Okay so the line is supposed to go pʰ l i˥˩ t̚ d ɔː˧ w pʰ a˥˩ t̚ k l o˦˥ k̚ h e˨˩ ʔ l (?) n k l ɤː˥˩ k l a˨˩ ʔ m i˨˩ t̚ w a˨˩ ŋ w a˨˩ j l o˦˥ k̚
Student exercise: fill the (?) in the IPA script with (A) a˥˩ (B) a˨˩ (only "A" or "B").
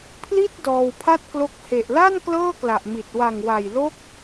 A